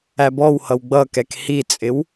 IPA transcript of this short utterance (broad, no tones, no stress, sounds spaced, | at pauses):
æ b ɔ w h ʌ w ɡ͡b ʌ k ɛ k h i t͡sʼ ɪ w